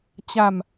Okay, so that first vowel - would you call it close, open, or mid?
open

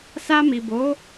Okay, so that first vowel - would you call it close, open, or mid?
open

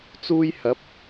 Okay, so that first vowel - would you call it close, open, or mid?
close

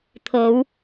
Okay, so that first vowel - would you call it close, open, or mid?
mid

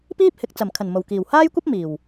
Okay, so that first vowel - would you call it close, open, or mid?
close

